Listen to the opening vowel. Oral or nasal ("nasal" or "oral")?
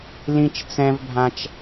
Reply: nasal